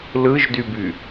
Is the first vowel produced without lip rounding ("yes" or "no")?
yes